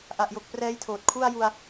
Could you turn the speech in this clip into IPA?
ʔ a˨˩ ʔ j o˨˩ k̚ p r ɛː˦˥ j tʰ oː˨˩ t̚ kʰ u˥˩ a̯ j u˧ a̯

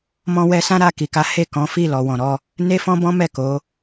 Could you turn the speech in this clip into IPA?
m ɔ̃˧ w ɛ˧ s ã˦ ɾ a˦˨ k i˨ k a˨˦ h e˦˨ k ɔ̃˨˦ f i˦˨ l ɔ˨ w ɔ̃˨ ɾ ɔ˧ | n e˦ f ɔ̃˦ b ɔ̃˦ m ɛ˦˨ k o˨˦

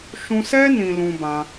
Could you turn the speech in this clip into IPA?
ʃ ũ˧ s ɛ˦ n ĩ˧ l ũ˧ b ã˧

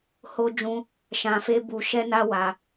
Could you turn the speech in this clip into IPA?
h o˦ d͡ʒ ũ˦ | ʃ ã˧ f e˦ b u˧ ʃ ɛ˦ n a˦ w a˧

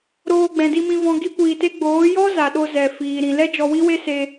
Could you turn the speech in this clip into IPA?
ɾ oː˧ ɡ͡b ɛ̃˨ d i˧ m ĩ˧ v ɔ̃˧ ɡ i˦ kʷ iː˧ t e˦ ɡ͡b oː˨˦ j ɔ˦ z a˨ ɗ o˧ z ɛ˨ f iː˨ ɾ ĩ˨ l ɛ˦ d͡ʒ ɔ˧ w i˦ w e˦ s e˧

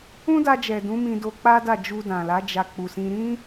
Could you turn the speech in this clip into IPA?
ũ˦ d a˧ d͡ʒ ɛ˨ d ũ˨˦ m ĩ˧ d o˧ k͡p a˦ d a˦˨ d͡ʒ u˧ d ã˨ l a˨˦ d͡ʒ a˧ k͡p u˨ s ĩ˧ ɾ ĩ˦

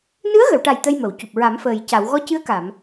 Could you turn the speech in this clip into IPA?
n ɨ˧˥ ə̯ ɣ ə˨˩˨ w ʈ a˨˩ j t̪ ə˧ j m ə˨˩˨ w c u˨˩ p̚ ɹ a˨˩˦ m f əː˨˩ j c a˨˩˨ w ɣ ɔ˧˥ c ɨ˧˥ ə̯ k a˨˩˨ m

